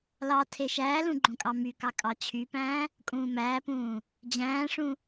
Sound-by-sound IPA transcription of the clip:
lɑ tʰeʃæːlũ ɡ͡ǃõkʼɑmykɑ kʼɑt͡ɕʰypæ̃ː | kʼũːmæːpũː | d͡ʑæ̃ːʂũ

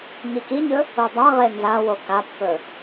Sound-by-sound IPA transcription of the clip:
ɲikiɲɵ | odˤaʁe nzawo kapːɵ

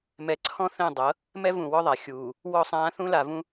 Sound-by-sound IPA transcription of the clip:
mɛ˨ǀʰɔ̃˦ θɛ̃˦˨ dˤɤ˨˦ | mɛ˦ vũ˨wɔ˦ðˤa˨ xʲuː˨ | wɔ˦˨sˤãː˦ θũ˦la˨vũ˦

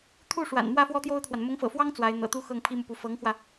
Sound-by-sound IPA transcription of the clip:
t̪ʰu˥˩ʂwa̰˨˩nmwä˥˩ fwɔ˥t̪jo˥ʊ̯t̪ʰwa˨n mʊ˧˥ŋfɤ̰˨˩ fwɑ˥ŋ t͡swa˧˥ɪ̯ n̪ɤ̰˨˩t̪u˥ xɤ˥˩ŋpʰi˥mu˨pu˧˥ fɤ˧˥ŋxwä˧

